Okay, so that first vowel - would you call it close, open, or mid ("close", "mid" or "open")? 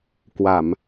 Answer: open